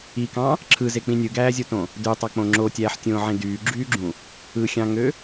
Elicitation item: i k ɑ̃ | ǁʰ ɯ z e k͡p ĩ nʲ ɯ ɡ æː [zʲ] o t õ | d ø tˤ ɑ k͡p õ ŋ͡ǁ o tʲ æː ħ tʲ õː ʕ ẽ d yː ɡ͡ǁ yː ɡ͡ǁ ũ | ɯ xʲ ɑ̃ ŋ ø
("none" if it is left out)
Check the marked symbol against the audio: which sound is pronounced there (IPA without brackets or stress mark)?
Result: zʲ